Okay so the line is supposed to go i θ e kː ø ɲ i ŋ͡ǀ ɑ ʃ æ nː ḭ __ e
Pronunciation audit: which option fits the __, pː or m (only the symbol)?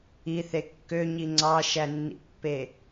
pː